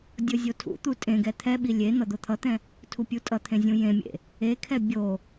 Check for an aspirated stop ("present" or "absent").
present